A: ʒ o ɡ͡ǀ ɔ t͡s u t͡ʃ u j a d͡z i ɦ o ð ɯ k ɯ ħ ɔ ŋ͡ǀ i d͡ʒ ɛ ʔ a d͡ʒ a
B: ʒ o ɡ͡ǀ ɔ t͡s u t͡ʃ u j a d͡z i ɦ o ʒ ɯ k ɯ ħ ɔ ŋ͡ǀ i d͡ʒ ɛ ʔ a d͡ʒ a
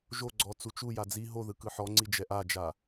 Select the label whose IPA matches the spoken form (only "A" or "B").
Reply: A